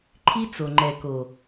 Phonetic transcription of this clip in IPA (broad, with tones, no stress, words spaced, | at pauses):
ǃʰi˦t͡so˨ŋ͡ǃɛ˨ko˨